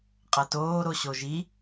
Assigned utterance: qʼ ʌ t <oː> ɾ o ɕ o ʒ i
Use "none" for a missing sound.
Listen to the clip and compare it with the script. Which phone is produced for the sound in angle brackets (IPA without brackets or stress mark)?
oː